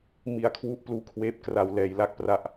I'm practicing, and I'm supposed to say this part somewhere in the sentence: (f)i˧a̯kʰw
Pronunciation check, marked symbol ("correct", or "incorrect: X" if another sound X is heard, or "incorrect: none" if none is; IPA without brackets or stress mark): incorrect: m